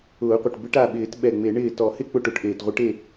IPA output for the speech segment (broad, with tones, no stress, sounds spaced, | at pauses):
ʊː˨˩˦ qʷ e˩ ʈ b ɪ˧˥ ʈ a˧˩ ɓ ɪː˨˩˦ t ɓ ɛ˧˩ ŋ͡m e˨˩˦ ɳ ɪː˧˩ t ɔ˨˩˦ h ɪ˥˨ k͡p ʊ˥˨ ʈ ʊ˨˩˦ ʈ ʔ eː˩ t ʁʷ ɪ˧˥ ʈ e˥˨